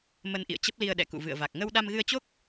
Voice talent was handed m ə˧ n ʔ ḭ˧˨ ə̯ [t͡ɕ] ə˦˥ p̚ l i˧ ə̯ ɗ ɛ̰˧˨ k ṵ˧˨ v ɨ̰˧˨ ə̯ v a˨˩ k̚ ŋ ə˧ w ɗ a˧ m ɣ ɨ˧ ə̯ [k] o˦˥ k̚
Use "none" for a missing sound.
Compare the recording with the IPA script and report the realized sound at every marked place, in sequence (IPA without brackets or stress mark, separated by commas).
t͡ɕ, t͡ɕ